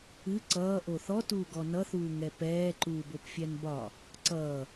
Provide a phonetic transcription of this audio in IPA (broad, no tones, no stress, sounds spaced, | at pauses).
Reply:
ɨ ǀ ʌː ʔ o θ ɔ t uː ɡ ɔ n ʌ θ uː ŋ ɛ p ɛː ǃ uː b o p fʲ ɛ n b ɒ | ǀ ʌː